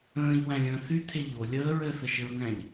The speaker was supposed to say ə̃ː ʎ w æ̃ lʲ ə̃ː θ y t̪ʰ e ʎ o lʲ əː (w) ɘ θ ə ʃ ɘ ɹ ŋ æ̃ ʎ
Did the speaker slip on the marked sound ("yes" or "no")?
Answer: yes